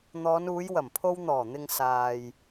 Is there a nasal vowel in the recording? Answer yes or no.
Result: no